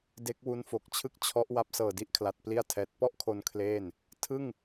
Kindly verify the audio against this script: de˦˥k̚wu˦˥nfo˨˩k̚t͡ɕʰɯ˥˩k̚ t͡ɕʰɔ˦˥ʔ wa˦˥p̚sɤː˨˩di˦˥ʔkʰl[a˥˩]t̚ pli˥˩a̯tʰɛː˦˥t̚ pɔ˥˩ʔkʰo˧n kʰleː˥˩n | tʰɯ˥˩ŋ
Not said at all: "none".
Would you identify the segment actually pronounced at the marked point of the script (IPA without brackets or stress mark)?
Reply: a˨˩